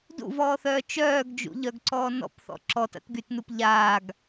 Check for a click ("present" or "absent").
present